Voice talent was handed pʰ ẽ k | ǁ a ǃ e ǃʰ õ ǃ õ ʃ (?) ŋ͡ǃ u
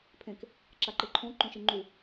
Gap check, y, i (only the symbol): i